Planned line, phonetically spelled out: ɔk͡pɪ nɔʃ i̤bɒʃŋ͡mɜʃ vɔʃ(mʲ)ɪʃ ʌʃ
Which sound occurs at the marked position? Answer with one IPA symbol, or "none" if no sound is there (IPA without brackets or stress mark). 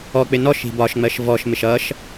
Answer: m